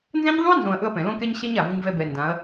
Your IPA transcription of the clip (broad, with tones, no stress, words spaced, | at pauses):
nzɛ̃˦ɲðˤũ˦ɐ̯nzõ˨ɐ̯ ʔɵ˦ɐ̯ pɛ̃˨ lõ˦kɛ˦ɲ ɕɛ˦ɲ a˨vu˦ɲvɛ˦ bɛ˨ndã˨˦ɐ̯